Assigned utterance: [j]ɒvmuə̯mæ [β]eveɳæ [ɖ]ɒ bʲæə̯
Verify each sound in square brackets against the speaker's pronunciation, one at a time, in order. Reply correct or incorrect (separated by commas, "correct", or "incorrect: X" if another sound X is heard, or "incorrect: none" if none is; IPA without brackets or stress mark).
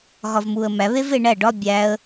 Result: incorrect: ɣ, correct, correct